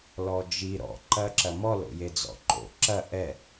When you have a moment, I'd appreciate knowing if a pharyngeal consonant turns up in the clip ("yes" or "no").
no